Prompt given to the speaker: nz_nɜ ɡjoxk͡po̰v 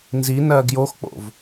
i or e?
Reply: i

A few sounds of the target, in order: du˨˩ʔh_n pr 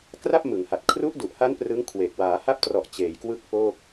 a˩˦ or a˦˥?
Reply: a˦˥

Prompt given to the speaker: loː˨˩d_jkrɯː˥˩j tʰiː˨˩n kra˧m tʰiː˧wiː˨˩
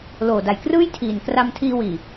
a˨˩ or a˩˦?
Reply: a˨˩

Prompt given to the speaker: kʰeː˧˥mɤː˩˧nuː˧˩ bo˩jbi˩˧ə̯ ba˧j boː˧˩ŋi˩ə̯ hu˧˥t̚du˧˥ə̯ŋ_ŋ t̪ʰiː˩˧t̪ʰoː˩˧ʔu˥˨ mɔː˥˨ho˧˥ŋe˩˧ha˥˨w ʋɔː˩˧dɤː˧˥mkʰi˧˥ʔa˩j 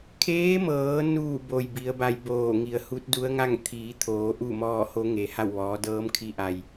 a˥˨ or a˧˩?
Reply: a˥˨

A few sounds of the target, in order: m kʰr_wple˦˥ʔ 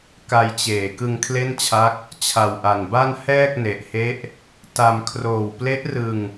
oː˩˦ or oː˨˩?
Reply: oː˨˩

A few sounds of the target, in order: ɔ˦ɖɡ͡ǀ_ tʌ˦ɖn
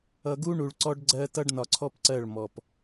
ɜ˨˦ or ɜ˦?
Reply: ɜ˦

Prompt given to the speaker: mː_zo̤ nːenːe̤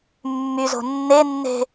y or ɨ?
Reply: y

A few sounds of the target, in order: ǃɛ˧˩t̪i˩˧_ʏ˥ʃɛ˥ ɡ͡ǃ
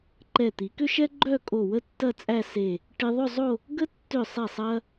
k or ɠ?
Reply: k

